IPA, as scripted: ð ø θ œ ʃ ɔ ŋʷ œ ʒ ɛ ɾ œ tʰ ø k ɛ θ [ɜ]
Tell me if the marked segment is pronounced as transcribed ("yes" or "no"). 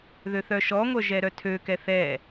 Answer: no